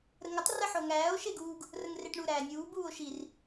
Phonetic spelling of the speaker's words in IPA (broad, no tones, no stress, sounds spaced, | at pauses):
ɾ ə ŋ ə tˤ r ə ħ o ŋ æː o̯ ʃ e ɡ uː ɡ | r ə ŋ r e ʈ ɳ u ɾ æː nʲ uː b uː o̯ ʃ i r